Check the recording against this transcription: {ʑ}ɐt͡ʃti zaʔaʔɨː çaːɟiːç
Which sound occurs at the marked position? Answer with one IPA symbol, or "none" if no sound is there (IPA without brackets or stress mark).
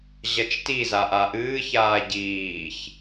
ʑ